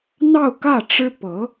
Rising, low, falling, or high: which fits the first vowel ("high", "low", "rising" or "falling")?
falling